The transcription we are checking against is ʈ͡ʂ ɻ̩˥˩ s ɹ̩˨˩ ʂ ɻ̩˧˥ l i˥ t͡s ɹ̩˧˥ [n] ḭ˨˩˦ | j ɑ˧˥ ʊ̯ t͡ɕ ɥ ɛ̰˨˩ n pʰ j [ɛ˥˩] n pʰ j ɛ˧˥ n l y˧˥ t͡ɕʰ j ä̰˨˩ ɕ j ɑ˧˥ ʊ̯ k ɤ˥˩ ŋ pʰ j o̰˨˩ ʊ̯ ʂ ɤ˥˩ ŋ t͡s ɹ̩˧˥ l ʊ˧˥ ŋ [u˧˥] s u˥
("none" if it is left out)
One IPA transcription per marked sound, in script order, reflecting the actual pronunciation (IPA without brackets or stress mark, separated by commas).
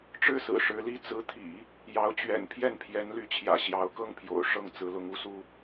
t̪ʰ, ɛ˥˩, u˧˥